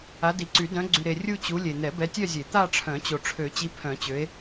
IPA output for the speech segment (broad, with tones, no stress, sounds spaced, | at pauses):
a˨˦ d i˨ ǀ y˨˩˦ d œ̃˨˦ ɡ͡ǀ y˨ ɾ e˨ rʲ u˦˨ t͡ɕ u˨˦ lʲ e˨ n̪ ɛ˨˩˦ b ɛ˨˦ tʲ œ˦˨ zʲ e˨˩˦ t̪ a˦˨ ʈ͡ʂʰ œ̃˨˩˦ t͡ɕ o˨ ʈ͡ʂʰ ø˨˩˦ t͡ɕ i˨˦ pʰ œ̃˨˩˦ t͡ɕ ø˨˦ e̯